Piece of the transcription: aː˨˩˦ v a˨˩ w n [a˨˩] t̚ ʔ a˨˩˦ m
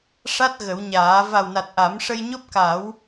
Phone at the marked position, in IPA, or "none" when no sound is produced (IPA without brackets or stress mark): a˨˩